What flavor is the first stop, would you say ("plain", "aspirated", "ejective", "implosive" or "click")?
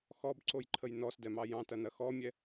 plain